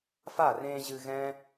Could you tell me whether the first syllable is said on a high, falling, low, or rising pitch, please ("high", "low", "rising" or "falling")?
falling